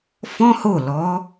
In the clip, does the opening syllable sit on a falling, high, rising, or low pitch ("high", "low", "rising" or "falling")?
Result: high